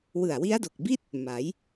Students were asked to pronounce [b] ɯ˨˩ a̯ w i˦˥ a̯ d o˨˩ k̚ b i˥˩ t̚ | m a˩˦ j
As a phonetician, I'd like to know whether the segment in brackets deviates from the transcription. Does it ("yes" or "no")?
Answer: yes